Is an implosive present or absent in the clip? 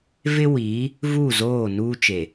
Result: absent